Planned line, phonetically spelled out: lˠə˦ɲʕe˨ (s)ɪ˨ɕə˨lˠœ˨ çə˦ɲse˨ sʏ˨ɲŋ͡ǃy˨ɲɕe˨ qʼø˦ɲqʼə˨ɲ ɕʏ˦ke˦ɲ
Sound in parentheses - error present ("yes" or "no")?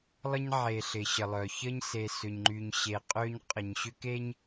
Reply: yes